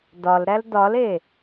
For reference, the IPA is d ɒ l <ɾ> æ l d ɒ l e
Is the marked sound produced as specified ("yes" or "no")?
yes